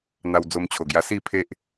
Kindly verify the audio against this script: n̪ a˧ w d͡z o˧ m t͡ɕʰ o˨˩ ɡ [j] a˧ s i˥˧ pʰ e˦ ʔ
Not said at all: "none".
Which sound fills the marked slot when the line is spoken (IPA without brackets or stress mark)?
j